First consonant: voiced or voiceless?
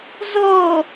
voiced